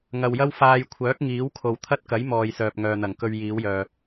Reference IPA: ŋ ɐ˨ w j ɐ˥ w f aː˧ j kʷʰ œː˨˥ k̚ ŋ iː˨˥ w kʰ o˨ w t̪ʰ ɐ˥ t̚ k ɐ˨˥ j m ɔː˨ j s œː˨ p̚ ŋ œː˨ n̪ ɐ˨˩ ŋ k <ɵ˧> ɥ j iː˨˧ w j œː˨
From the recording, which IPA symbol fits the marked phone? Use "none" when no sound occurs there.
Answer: ɵ˧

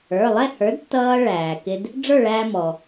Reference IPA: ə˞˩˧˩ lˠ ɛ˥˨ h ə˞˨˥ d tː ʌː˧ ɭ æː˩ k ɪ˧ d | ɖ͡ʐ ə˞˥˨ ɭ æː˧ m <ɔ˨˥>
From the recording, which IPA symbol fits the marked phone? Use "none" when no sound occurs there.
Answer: ɔ˩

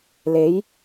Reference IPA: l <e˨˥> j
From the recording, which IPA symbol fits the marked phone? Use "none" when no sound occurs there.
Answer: e˨˥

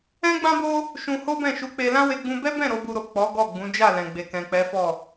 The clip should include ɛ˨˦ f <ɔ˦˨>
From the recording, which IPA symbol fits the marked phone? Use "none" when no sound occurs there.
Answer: ɔ˦˨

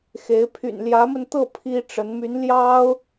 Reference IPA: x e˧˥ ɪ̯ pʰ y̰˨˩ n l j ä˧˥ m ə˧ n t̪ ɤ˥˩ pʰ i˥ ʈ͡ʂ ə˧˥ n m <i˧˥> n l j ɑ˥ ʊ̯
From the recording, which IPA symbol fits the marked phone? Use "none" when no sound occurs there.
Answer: y˧˥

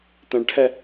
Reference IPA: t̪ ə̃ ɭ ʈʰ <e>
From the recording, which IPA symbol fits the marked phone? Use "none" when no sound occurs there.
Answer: ɛ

